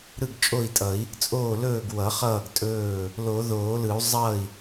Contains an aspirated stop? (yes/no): no